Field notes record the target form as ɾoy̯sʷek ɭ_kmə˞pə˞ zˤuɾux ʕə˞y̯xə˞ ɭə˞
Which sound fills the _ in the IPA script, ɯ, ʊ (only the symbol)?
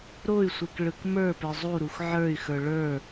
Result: ɯ